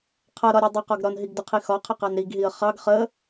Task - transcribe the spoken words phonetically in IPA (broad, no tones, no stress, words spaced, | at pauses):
qʰʌɾɒɾʲɒ dˤʊqɒɡ ɾɒnɦiɡdʊqʰi xɒqʰɪqɑn ɾiɡɦiə̯ χɑɡ χə